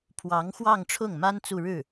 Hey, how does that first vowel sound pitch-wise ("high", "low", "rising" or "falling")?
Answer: rising